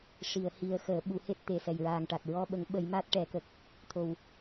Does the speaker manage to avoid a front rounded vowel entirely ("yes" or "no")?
yes